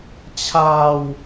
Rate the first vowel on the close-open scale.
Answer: open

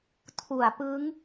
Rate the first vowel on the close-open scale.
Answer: close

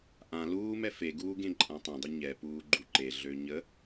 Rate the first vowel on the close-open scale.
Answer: open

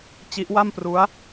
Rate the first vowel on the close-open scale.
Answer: close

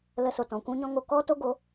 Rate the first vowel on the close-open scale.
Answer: mid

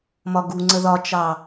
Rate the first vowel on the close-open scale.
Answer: open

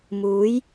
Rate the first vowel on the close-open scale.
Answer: close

